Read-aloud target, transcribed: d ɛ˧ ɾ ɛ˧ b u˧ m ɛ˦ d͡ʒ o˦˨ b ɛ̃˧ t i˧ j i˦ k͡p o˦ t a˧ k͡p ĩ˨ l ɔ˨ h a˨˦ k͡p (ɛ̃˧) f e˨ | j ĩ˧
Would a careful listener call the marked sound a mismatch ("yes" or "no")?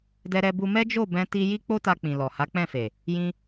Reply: yes